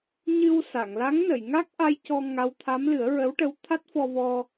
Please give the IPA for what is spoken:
ɲɨ˧wsa˨˩˨ŋ la˧˥ŋnə˨˩˨j ŋa˦˥k̚ʔa˧jcɔ˧ ŋa˧˥wt̪ʰa˧˥m lɨ˨˩˦ə̯ɹə˧˥wʈə˧˥w t̪ʰa˦˥t̚fɔ˧vɔ˧

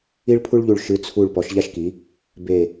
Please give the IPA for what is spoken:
i˧ɭpʰu˧ɭʎu˨˩ɭ ʃɨ˩˧t͡sʰu˨˩ɭ pɔ˩˧ʃʎa˧ʃki˩˧ | be˨˩

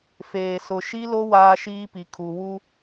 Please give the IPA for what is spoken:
feː˨sʊ˨ʃi˦lo˦ waː˦ʃiː˦pi˨ kʰu˨ wu˦

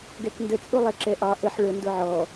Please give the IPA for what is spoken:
ɡɛkndə t͡sʼulˠɛǁɛʔɑ ʔəħ ɭə ndʊʕɔ

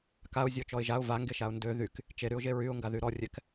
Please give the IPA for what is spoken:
kaʊ̯zʲɔ t͡ʃɔɪ̯ʒaʊ̯ vaŋɡeʃaʊ̯ ndø ðyk | t͡ʃeɾyʊ̯ʒe ɹyʊ̯ŋɡaðy ɾɔrʲɛk

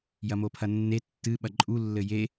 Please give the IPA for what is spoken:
jɐmopʰɐnːe tːɨ ɓɐǃʼu lːɘje

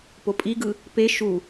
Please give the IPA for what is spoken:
popʼiɡɯ | pe ʃu

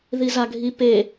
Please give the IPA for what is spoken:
ðizaɡʱi pe

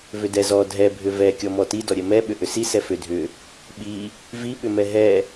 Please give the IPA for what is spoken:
vʏdɛzɔ dʱɛ bʱʏvɛ kʲɔmɔti dɔɾʲɛmɛ ɓʏʔʏsi sɛfʏ dʱʏ | ɓi | vi ɓʏmɛɦɛ

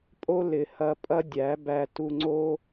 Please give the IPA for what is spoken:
pʼo˦lɪ˨hɐ˧ pʼɐ˦dʲæ˨˦bæ˧ tu˧ŋ͡ǀo˦

